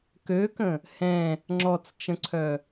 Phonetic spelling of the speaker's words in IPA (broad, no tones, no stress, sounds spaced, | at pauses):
k ø k ə̃ | h ɛ̃ | ŋ͡ǁ ɔ t͡s t͡ʃ ə̃ ǀʰ œ